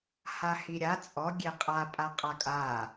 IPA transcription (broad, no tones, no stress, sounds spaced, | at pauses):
h a h i ɾʲ a t͡sʼ ɔ ɡʲ e qʼ a pʼ a qʼ a kʼ a